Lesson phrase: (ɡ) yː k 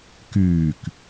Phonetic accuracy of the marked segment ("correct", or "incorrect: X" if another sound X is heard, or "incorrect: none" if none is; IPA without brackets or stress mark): incorrect: k